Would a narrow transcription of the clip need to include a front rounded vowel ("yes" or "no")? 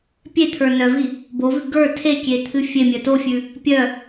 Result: yes